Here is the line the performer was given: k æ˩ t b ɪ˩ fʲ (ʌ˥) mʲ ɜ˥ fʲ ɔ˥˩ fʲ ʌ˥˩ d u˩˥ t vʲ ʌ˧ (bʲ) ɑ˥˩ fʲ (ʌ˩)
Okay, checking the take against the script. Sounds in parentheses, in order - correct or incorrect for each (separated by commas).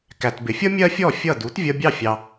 correct, correct, incorrect